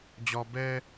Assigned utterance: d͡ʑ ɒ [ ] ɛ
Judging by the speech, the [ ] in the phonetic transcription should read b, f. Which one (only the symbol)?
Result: b